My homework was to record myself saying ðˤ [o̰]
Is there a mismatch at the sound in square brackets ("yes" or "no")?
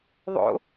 no